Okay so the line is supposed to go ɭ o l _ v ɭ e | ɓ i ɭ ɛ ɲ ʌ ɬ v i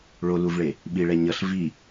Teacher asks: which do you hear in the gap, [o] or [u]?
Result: u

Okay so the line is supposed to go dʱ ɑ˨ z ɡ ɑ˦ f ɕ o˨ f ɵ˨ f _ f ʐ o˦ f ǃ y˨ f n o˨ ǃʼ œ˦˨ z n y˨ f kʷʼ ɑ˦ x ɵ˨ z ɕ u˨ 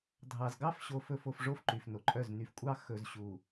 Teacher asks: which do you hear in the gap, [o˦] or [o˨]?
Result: o˨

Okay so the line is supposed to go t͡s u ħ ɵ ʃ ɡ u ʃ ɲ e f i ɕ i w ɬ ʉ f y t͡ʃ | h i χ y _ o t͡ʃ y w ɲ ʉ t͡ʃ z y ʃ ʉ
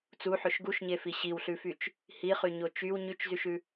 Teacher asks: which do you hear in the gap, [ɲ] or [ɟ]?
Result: ɲ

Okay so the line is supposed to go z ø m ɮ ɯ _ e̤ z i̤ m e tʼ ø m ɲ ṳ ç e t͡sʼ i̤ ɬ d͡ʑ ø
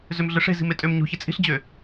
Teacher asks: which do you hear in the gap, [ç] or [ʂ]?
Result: ʂ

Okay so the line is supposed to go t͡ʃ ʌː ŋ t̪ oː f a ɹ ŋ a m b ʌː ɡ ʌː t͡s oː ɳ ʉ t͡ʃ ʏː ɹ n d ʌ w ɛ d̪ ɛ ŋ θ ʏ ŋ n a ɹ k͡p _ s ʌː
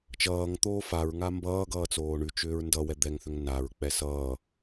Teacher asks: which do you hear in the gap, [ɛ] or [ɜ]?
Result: ɛ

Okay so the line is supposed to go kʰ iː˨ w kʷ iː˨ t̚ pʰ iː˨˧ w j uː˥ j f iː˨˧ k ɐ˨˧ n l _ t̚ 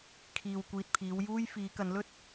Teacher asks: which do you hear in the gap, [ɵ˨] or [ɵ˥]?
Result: ɵ˥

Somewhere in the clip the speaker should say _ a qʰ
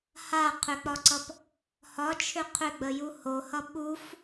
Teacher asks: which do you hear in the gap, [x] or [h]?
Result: h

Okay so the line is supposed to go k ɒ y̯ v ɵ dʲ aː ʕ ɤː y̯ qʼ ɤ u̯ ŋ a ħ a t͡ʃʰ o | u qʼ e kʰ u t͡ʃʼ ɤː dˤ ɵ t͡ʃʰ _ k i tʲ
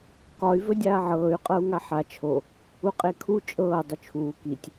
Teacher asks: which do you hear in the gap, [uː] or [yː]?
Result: uː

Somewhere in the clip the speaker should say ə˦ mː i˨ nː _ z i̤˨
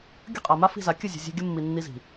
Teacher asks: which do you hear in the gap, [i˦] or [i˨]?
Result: i˦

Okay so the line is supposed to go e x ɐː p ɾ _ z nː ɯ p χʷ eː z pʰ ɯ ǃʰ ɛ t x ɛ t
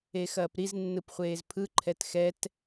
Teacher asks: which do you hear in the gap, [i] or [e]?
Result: i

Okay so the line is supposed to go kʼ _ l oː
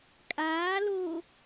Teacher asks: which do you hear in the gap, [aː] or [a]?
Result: aː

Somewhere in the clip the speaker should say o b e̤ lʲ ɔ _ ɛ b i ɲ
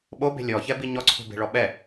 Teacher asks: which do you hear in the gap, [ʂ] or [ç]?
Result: ç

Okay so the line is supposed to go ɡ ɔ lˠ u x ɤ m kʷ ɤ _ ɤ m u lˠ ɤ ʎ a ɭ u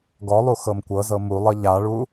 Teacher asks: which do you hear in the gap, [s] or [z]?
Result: z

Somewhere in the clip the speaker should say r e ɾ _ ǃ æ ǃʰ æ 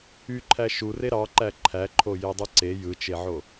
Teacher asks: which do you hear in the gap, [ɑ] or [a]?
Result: ɑ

